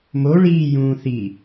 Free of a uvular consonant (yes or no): yes